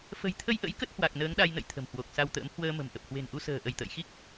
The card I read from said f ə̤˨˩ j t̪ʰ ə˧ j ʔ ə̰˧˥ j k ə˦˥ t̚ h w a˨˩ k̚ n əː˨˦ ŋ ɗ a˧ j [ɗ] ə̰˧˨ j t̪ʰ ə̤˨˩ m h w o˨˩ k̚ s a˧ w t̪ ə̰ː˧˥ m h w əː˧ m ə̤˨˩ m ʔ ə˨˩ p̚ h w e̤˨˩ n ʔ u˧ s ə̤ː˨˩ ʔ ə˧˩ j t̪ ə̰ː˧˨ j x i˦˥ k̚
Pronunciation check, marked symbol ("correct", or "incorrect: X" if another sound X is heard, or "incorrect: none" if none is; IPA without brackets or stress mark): incorrect: n